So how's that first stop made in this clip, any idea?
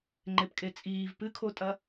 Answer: click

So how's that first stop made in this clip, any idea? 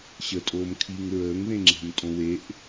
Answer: ejective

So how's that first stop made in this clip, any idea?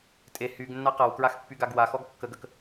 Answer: ejective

